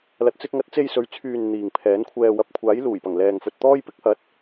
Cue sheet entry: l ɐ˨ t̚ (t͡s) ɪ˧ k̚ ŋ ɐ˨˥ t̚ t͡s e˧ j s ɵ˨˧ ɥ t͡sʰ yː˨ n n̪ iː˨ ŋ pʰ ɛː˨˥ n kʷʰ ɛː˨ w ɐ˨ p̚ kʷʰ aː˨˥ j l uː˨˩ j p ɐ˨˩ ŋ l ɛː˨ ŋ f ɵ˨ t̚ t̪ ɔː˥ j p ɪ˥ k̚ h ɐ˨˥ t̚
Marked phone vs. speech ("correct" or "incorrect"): correct